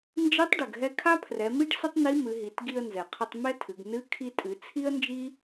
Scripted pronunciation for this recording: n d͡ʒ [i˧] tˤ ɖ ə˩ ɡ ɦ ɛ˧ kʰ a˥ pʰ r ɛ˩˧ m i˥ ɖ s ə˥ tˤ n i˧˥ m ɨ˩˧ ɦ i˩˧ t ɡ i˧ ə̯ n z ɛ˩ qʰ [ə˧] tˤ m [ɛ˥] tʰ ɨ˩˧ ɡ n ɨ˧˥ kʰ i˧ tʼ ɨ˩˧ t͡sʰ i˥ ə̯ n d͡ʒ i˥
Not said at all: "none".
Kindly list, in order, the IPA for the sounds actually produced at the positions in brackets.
i˧˥, ə˧, ɛ˥

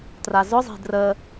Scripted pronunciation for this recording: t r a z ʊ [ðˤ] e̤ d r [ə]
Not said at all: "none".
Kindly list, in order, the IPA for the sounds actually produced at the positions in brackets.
zˤ, ə

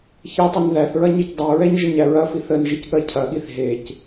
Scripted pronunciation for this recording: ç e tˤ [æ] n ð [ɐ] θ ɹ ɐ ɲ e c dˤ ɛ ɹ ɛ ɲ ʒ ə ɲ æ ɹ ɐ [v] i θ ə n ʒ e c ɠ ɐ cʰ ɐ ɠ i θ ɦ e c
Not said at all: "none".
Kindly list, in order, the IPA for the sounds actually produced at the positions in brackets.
ɐ, æ, f

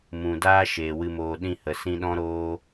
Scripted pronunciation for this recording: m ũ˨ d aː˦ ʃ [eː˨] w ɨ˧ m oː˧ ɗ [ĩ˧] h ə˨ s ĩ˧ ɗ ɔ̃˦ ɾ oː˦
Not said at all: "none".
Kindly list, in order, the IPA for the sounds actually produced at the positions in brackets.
eː˨, ĩ˧

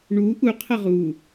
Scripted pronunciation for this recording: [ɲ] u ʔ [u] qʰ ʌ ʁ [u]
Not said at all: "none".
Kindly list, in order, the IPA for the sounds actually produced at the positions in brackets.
ɳ, u, u

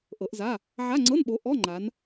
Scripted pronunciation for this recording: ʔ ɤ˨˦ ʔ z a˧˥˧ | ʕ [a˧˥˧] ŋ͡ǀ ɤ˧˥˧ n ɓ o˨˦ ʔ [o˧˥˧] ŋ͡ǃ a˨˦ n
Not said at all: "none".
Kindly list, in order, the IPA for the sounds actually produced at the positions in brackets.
a˧˥˧, ɔ˧˥˧

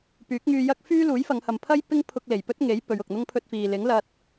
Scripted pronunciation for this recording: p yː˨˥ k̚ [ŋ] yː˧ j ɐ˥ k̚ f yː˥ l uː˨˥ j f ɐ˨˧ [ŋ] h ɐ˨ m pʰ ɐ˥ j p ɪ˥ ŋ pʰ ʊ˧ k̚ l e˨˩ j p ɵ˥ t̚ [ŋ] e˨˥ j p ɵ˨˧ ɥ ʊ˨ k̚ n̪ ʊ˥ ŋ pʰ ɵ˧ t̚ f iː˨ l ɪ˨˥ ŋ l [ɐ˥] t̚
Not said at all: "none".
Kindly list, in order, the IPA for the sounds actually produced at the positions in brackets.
ŋ, ŋ, ŋ, ɐ˧

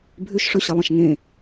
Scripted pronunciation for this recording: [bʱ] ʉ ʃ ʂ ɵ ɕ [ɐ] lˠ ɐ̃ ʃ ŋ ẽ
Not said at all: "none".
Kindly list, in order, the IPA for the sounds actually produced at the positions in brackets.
bʱ, ɐ

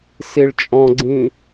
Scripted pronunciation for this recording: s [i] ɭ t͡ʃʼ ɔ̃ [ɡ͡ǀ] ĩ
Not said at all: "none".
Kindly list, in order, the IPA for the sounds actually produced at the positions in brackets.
i, ɡ͡ǀ

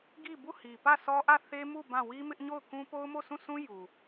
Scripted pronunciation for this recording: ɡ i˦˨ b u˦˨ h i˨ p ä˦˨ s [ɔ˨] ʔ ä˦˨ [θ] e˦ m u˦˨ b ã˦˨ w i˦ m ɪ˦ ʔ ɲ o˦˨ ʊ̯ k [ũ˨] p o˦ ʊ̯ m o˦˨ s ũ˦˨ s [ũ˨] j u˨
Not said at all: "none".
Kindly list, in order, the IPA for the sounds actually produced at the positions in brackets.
ɔ˦, θ, ũ˦, ũ˦

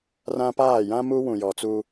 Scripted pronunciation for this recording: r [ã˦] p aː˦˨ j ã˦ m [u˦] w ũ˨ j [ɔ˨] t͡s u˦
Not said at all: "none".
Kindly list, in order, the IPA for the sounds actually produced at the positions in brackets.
ã˦, u˦, ɔ˨

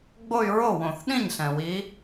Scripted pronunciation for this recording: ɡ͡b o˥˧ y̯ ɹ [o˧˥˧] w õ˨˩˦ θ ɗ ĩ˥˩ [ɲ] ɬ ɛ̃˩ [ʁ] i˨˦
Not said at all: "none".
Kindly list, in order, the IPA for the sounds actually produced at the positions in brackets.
o˥˩, ɲ, w

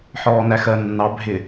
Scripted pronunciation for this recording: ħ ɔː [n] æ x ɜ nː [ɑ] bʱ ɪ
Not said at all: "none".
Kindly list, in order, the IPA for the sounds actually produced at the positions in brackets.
n, ɑ

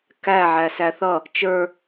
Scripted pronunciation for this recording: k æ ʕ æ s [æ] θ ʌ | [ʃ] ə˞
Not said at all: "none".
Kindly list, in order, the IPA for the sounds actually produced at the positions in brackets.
æ, t͡ʃ

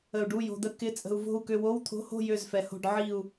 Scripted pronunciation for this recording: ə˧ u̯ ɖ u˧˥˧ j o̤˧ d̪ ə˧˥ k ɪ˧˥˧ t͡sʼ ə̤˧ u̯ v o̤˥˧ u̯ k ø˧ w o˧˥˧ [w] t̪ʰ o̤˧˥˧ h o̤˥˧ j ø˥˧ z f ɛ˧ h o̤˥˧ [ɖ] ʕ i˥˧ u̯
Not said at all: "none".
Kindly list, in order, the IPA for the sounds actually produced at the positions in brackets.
w, ɖ

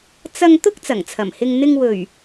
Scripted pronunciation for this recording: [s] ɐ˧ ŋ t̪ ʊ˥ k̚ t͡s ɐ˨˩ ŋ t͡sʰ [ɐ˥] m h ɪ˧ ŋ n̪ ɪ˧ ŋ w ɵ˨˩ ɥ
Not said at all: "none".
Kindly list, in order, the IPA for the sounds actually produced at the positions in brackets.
t͡s, ɐ˨˩

